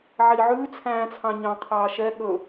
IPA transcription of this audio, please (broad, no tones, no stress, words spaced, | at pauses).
ʕiʕʉː t͡sʰæ̃ːt͡sʰɑ̃ɲɑ̃ qʰɑːʃɛ ɠɵ